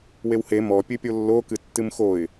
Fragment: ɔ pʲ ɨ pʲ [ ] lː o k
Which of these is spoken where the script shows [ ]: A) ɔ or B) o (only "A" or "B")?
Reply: B